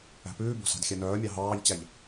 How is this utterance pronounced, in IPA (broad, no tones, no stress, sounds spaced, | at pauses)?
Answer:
æ̤ p ʉː b o̤ s ɑ̤ d xʲ ɛ n œː mʲ ɑ ɦ ɑː ʎ t͡ɕ æ ʎ